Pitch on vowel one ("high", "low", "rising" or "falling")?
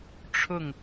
falling